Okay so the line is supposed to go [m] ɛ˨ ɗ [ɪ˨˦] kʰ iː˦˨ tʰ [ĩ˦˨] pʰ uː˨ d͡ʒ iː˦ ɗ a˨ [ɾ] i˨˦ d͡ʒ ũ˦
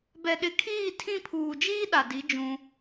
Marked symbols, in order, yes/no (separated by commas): no, yes, yes, no